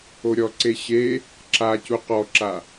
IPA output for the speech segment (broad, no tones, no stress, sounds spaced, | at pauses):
o ɾʲ ɔ ǀ e ɕ e | ǁ a c u q ɔ ǁ a